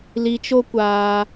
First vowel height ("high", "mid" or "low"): high